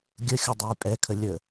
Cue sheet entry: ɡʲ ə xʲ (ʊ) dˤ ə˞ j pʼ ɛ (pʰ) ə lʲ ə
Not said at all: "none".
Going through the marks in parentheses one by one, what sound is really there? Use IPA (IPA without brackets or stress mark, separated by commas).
ʊ, kʰ